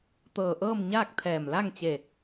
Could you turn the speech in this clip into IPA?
t̪ɤː˧˩ʔɤː˥˨m ɲaː˥˨k̚t̪ʰɛː˧˩m la˥˨ŋt͡ɕe˧˩

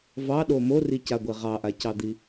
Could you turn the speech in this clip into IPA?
vɑɗo moricaɡʷe ʁɑʔacɑd̪i

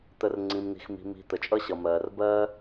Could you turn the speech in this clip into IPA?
t̪ə˧r ŋ͡ǀĩ˧mn̪i̤˧xmi̤˧ mi̤˧ t̪ə˨t͡ʃʼʌ˦ɕʌ˨mɜː˨r bɜː˦

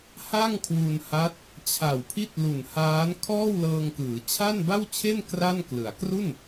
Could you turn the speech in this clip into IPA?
ha˥˩ŋkʰwu˧nha˦˥t̚ | t͡ɕʰa˨˩wpʰi˥˩t̚lu˨˩nhaː˦˥n kʰɔː˥˩wlɤː˧ŋkɯː˩˦ t͡ɕʰa˥˩nba˥˩wt͡ɕʰe˥˩n kra˥˩nklɯ˩˦a̯ kru˥˩n

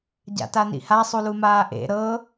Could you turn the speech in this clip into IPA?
ɟa̰tanḭha sˤulumaːʔḛ ɾɤ

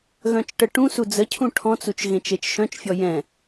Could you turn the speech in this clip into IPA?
ɣœ̃t͡ʃʈəʈũsu d͡zəcʰũ ʈʰɔ̃t͡sut͡ʃ ɣẽt͡ʃet͡ʃʃœ̃t͡ʃfʲɔ jɛ̃

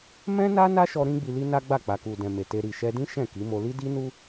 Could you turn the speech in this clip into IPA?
mɛ̃˦na˦ na˦ʃɔ˧ ɾĩ˦ɡ͡bi˧li˦ na˦ɡ͡ba˦˨ k͡pa˨ku˨dɛ̃˨ me˨te˧ ɾi˨ʃɛ˧dĩ˦ ʃɛ̃˦˨ki˨˦mo˧ li˦di˦nu˦

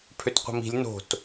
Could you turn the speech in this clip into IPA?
pʰøtqʷə̤mi̤lʲ no̤t

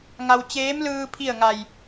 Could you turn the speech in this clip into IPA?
ŋa˧w t͡ɕeː˧˥mlɯː˧ pʰi˥˨ə̯ŋa˧˩j

